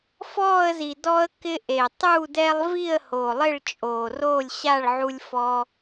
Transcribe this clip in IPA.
f ɔː˥˨ ə̯ z i˨˩ d ɔ˦ ə̯ k ɪ˦ ʔ e˨˩ tˤ u˥˨ d ɛ˦ lˠ v i˥˨ ə̯ h o˨˩ lˠ ɪ˥˨ ɭ t͡ʃʼ oː˨˩ r oː˥˨ lʲ ɕ a˥˨ ɭ ʕ u˦ lʲ f ɔ˦

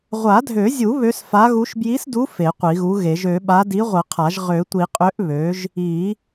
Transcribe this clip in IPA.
ʁʷ a˨˩˦ dʱ ø˨˩˦ zʲ u˨˩˦ β ø˨˥ s f a˨˥ ɣ u˨˥ ʃ b j i˨˥ s d u˨˥ f e˨˩˦ qʷ i˨˩˦ ɣ u˨˥ ɣ e˨˩˦ ʒ ø˨˩˦ ɓ a˨˥ d i˨˥ ʁʷ ə˨˩˦ qʰ a˨˩˦ ʒ ʁ ø˨˩˦ tʷ i˨˩˦ qʼ ø˨˥ ʔ β ø˨˥ ʒ | i˨˩˦

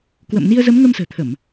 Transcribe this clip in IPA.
k w ə̰˧˨ m n i˧ ə̯ z ə˨˦ m ŋ ə˧ m s ə̤ː˨˩ t̪ʰ ə˧˩˨ m

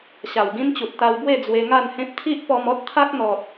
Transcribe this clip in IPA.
ɕ a˨˩ w ɡ ĩ˦ n t͡ɕ u˨ t̚ t̪ a˧ w b w e˥˧ d͡z w e˧ ŋ a˥˧ n h ẽ˦ p̚ t̪ʰ i˦ ʔ p ɔ˧ m ɔ˦ t̚ t̪ʰ a˦ k̚ n̪ ɔ˨ t̚

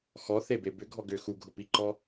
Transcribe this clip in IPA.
x ɔ θ e b e b ʏ ɡʱ ɔ ɡ ʏ x u ɡʱ ʊ p i ǃ ɔ

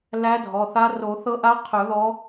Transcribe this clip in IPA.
l æ˧˥ dʱ ɔ˩˧˩ θ a˧˥ r o˨˩˦ θ ɤ˧˥ ʔ a˧˥ qʰ ɵ˨˩˦ ð ɔ˧˥

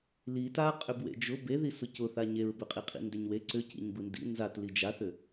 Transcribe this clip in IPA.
l i t a qʼ ʏ b w ḛ d͡ʒ ʊ b e ð i s ʊ c ʊ θ a ɲ e ɹ b ʏ qʼ i qʼ ḭ n d ʏ ɲ w e ǀ ʏ c ḭ ɲ b ɯ n d ḭ n z a t l i d͡ʒ a θ ʏ

